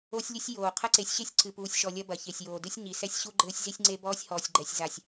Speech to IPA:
o˦sʲlʲɘ˦sʲ joː˨ qʰɐ˦ǀe˨˦sʲɕe˦sʲ ǀɨ˨ puː˨sʲʃɔ˨ lʲɐ˦bɐ˨çe˨sʲjoː˨ dɨ˦sʲɲi˨sɛ˦sʲ ɕu˦ɡ͡ǃɘː˦sʲ zi˦sʲŋ͡ǀe˦bɔː˦sʲ hɔː˨sʲɡ͡ǃɛ˨sʲ za˨sʲ

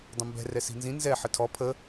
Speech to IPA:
dˤə̃mbɛ̤ rɛsi̤nzĩ nzɛ ħətʰɔ pʰə

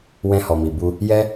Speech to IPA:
wɛ̃˧hɔ˨mi˨bu˧ | jɛ˦

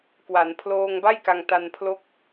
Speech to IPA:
kwa˩˦npʰloː˧ŋ ba˥˩jka˧ŋta˧npʰlo˦˥k̚

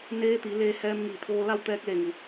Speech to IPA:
neː˧˥t̪i˩˧leː˧ hɛː˧mŋiː˧˩t̪ʰoː˧la˥˨w t̪ɛː˧k̚le˧˩ŋu˩

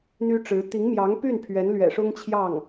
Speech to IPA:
n̪y˥ʈ͡ʂɻ̩˧˥ t̪i˧˥ŋmjɑ˧˥ŋpy˥˩n pʰɥɛ˧˥nlɥɛ̰˨˩ʂʊ˥ŋt͡ɕʰjɑ˥˩ŋ

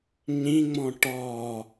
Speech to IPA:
ɲĩŋ͡mɔ̃ ʈɔ

